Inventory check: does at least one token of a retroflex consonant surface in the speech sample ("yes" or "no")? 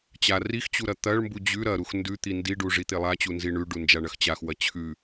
yes